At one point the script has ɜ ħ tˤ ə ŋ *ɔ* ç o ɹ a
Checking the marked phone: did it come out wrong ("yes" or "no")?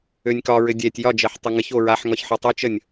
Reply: yes